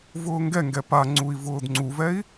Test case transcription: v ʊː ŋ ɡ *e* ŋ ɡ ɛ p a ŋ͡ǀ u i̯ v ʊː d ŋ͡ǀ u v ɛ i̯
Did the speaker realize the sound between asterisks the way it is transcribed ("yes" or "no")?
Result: no